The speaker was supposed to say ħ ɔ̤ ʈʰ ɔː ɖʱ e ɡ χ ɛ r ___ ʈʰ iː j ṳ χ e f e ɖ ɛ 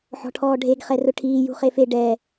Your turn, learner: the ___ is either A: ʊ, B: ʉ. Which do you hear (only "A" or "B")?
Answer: A